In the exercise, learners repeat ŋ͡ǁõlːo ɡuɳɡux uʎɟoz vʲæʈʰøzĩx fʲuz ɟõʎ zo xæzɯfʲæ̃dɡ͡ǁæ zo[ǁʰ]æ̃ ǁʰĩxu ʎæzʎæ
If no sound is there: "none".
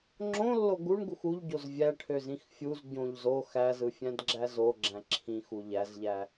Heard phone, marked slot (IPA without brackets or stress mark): ɡ͡ǁ